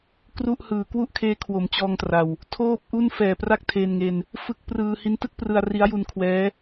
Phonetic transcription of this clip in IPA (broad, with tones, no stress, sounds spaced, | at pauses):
k r u˥˩ ʔ h ɯː˨˩ k w u˥˩ ʔ kʰ eː˦˥ kʰ w o˩˦ m t͡ɕ ɔː˧ ŋ t r a˨˩ w | tʰ oː˥˩ p̚ ʔ u˥˩ n f ɛː˨˩ p r a˦˥ k̚ tʰ e˧ n ŋ e˧ n | f ɯ˦˥ k̚ p r ɯː˧ h i˦˥ n t ɯ˥˩ k̚ p r ɯ˧ a̯ r i˦˥ a̯ j u˧ n kʰ w ɛː˦˥